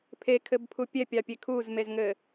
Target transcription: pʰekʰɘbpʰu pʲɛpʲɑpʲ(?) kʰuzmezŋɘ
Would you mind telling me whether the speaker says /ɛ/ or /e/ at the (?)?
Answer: e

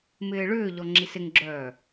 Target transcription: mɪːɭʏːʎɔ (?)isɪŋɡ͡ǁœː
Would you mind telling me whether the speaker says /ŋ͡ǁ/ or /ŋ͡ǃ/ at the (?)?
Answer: ŋ͡ǁ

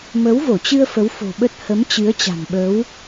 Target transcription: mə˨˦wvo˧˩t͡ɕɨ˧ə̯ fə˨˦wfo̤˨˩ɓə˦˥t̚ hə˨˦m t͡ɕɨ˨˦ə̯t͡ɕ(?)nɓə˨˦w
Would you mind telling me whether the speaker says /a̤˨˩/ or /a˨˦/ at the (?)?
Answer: a̤˨˩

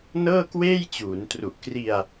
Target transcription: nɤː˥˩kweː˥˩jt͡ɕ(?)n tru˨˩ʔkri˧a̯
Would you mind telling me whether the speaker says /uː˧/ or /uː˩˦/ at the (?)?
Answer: uː˩˦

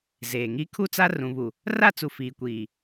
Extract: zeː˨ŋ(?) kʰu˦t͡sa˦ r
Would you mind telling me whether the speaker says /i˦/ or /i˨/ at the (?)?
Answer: i˦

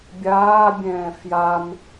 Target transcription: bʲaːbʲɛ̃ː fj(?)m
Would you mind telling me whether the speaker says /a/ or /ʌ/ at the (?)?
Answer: a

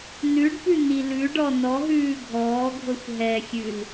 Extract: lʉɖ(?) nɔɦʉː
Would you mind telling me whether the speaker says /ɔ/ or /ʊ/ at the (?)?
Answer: ɔ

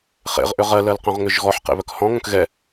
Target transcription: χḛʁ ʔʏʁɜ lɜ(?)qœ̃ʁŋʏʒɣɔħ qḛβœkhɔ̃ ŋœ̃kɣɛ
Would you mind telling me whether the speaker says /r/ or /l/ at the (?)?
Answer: l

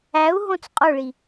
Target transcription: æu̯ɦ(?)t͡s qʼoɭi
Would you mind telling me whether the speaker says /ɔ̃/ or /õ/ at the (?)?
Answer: õ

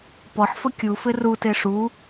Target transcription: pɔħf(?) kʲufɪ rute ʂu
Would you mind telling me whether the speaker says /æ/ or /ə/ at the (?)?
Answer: ə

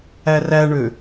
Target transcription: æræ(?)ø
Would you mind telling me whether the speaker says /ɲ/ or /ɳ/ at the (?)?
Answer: ɳ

